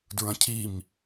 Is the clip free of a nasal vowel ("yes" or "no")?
no